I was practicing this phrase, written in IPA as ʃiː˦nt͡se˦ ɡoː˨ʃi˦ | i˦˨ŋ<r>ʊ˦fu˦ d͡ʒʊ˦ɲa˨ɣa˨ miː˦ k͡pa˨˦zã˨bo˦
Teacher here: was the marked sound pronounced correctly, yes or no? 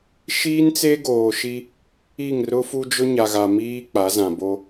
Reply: yes